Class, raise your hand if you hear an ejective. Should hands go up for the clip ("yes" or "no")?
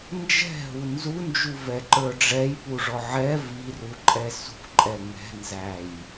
yes